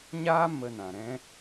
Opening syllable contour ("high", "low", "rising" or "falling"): high